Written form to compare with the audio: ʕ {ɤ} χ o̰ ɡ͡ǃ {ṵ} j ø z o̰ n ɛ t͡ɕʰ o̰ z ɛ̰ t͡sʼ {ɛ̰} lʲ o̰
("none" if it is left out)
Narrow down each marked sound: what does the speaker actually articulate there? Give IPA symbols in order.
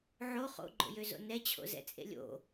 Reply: o, o̰, ḛ

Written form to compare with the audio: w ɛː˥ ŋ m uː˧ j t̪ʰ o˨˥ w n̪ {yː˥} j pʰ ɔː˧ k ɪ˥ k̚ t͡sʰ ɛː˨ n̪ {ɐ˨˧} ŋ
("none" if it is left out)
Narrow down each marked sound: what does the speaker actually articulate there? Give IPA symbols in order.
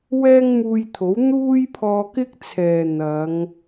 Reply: uː˥, ɐ˨˧

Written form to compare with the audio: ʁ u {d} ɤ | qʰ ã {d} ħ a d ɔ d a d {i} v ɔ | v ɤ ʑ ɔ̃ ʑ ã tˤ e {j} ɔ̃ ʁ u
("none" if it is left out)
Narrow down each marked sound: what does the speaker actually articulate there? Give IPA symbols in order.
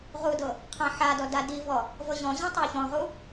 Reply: d, none, i, ç

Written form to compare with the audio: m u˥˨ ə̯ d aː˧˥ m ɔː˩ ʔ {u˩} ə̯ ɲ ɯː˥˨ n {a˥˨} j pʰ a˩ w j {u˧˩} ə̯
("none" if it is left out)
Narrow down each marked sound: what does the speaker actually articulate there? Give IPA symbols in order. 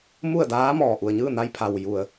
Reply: u˩, a˧, u˩

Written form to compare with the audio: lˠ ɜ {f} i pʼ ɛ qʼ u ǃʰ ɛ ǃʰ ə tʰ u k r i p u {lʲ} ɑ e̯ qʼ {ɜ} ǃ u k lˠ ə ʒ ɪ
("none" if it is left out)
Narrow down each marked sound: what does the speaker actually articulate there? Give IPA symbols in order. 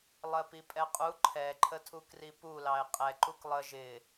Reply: p, l, ɛ

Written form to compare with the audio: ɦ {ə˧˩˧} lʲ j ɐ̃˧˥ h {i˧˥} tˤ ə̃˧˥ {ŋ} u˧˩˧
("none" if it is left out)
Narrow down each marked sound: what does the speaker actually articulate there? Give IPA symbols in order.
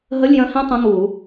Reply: ə˧˥˧, ĩ˧˥, ŋ

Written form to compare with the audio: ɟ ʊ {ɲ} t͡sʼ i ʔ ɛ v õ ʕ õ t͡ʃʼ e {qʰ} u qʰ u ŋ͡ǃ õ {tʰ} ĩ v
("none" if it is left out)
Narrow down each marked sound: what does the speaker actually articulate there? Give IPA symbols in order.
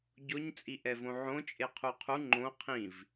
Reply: ɲ, qʰ, qʰ

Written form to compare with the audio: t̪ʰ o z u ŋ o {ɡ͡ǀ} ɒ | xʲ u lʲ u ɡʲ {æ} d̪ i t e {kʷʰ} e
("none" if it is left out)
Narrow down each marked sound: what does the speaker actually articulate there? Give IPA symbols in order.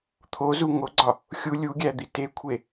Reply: ɡ͡ǀ, æ, kʷʰ

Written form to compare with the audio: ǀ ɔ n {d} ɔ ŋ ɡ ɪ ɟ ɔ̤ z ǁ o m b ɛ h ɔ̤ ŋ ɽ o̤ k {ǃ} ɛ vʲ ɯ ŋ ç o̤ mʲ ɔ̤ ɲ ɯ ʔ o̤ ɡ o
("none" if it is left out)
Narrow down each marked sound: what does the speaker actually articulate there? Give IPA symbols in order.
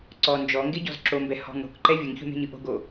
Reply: d͡ʒ, ǃ

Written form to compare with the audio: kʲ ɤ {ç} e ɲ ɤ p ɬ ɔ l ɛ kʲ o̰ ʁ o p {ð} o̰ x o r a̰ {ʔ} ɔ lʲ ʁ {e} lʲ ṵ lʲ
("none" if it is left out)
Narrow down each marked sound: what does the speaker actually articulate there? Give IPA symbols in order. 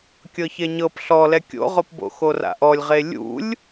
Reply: ç, b, ʔ, e

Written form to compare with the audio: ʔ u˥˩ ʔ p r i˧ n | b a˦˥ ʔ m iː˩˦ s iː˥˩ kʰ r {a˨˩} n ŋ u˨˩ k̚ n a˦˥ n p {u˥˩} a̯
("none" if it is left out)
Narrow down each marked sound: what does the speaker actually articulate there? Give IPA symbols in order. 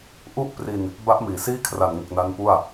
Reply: a˨˩, u˥˩

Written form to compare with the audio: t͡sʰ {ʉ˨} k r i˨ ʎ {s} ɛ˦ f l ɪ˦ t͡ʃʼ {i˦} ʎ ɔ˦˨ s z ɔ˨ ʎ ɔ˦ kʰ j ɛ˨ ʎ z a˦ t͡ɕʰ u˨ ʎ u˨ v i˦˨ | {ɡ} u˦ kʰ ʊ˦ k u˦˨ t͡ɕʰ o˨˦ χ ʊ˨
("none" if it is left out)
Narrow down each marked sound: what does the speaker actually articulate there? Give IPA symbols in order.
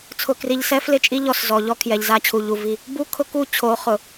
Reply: ʊ˨, s, i˦, b

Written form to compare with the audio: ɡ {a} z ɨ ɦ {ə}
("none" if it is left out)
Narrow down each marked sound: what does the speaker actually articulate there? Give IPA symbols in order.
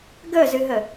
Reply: ə, ə

